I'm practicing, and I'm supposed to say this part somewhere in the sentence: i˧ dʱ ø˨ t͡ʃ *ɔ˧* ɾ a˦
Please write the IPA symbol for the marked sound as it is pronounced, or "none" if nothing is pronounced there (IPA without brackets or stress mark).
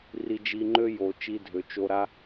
o˧